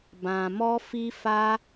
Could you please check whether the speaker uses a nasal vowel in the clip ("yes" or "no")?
yes